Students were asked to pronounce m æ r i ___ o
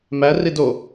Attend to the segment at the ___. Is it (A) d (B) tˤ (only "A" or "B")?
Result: A